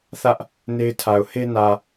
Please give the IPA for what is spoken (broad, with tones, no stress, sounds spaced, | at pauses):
θ ä˦ ʔ | n e˦ ɪ̯ tʰ a˨ ʊ̯ h e˦ n ä˨